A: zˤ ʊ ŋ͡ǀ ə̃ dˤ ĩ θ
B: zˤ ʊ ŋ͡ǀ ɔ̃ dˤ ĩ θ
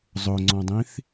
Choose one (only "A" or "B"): B